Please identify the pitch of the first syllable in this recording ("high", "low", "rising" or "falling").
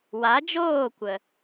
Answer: rising